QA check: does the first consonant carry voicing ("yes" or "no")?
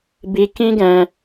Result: yes